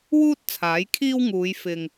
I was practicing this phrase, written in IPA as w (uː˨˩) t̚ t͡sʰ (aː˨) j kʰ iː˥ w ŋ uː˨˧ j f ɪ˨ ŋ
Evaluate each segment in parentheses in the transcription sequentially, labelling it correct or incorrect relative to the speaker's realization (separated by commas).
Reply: incorrect, incorrect